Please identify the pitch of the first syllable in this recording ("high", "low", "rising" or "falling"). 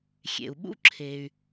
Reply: low